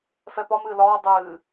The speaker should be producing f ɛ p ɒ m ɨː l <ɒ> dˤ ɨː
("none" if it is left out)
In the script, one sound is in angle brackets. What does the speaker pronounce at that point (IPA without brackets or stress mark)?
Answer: ɒː